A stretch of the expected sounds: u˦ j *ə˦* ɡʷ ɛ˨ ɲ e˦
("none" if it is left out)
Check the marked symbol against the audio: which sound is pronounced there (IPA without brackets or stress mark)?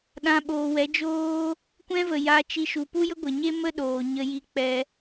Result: ə˦